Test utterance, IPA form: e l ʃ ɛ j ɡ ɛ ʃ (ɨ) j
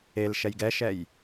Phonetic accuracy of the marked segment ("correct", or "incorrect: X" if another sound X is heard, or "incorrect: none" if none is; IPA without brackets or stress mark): incorrect: ɛ